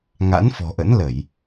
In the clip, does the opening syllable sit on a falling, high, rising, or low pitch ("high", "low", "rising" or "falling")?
rising